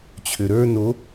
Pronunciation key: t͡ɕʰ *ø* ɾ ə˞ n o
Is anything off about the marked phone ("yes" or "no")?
no